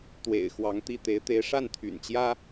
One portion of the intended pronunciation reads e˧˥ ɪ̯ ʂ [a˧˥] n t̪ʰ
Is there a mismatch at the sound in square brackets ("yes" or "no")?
yes